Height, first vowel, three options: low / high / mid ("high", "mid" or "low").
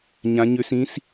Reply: low